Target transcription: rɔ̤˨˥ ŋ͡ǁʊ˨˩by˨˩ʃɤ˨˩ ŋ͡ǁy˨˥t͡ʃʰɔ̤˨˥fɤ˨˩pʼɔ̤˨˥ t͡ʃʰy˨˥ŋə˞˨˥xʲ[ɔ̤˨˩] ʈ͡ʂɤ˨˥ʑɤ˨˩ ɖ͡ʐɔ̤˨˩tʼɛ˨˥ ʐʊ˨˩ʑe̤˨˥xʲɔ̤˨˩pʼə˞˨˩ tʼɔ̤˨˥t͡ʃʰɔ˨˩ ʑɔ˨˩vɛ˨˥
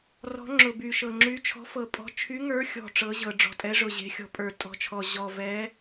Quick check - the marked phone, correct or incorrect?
correct